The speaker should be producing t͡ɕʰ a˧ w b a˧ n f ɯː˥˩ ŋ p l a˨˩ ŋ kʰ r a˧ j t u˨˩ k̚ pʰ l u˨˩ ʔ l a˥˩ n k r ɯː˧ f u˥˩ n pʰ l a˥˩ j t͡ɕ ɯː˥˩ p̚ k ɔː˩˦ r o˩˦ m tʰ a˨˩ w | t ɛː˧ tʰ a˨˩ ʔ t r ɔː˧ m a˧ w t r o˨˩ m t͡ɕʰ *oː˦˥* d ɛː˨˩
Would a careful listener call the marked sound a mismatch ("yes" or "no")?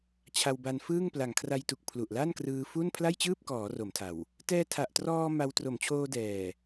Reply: yes